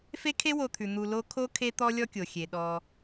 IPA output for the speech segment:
f e˦ kʰ e˦ w o˨ t̪ʰ ʉ˩ n̪ u˨ l o˦ kʰ o˦ kʰ e˦ t̪ ɔ˦ lʲ ɔ˦ kʲ o˩ xʲ e˩ ɗ ɔ˨

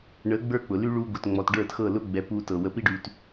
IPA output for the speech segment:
ɳ ə˨˦ ɡ͡b ə˞˦ k͡p ʊ˨ l y˦ ɭ u˧ ɡ ʊ˨ t ŋ͡m ɔ˨ t ɖ ə˞˦˨ t x ɤ˦˨ l ʊ˦ ɡ͡b ɛ˨˦ p u˧ t ɤ˨ w ə˧ p i˦ ɖ y˧ t

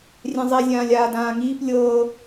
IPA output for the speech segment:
rʲ ɛ̃ zˤ i zʲ ãː lʲ aː d ãː ŋ iː p lʲ ɤː

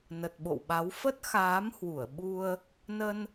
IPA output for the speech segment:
n ə˨˩ t̚ ɓ o̰˧˨ w ɓ a˨˦ w f ə˦˥ t̚ x aː˨˦ m h w u˧˩ ə̯ ɓ u˧ ə̯ | n ə˧ n

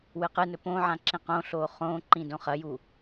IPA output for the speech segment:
w ɨ q ɨ n ɵ p õ ʕ ã ǁ ĩ q õ ɬ oː χ õː ǃ ĩ d õ χ ɐ j u

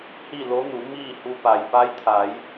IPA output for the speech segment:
h i˥˨ l o˧˥ n u˩˧ m iː˥˨ h u˧ p a˩ j p a˧˥ j t̪ʰ a˩˧ j

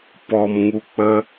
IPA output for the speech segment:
p ɔ˧ m ŋ u˧ k͡p ə˦

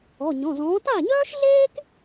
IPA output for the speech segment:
ɔ˩˧˩ ɲ ɔ̃˩˧˩ z ɔ̃ː˨˥ t a˥˩ ɲ œː˥ ʃ ɮ eː˥ k

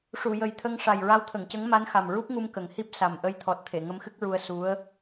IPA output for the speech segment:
ʂ u˨˩˨ j ə˨˩ j t̪ʰ ə˧ ŋ ʂ a˨˩ j ɹ a˧˥ w t̪ʰ ə˨˩˨ ŋ c ə˧˥ ŋ m a˧˥ n x a˨˩ m ɹ u˦˥ p̚ ŋ u˧ m k ə˨˩ ŋ h i˦˥ p̚ s a˨˩ m ʔ ə˧ j t̪ʰ ɔ˨˩ t̚ t̪ʰ e˨˩˨ ŋ ə˧˥ m x ɨ˦˥ k̚ ɹ u˧ ə̯ s u˧˥ ə̯

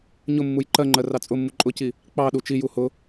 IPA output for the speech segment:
ɲ ʊ mː u j ǃ ɜ ŋ͡ǃ ɜ r ɑ t͡sʼ ʊ mː u ǃʼ ʊ c i | k͡p ɑ ɗ u t͡ʃ i j u h ʊ

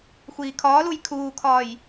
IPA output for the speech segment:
xʷ iː kʰ ɒː l u j kʰ uː kʰ ɒː j

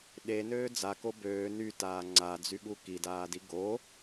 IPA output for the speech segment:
ɗ e n øː d͡z a k o b øː n y t aː ŋ͡ǀ a d͡z y ɠ u k i d aː d i ɡ o

